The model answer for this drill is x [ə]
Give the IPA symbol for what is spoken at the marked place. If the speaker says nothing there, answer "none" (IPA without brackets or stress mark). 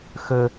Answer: ə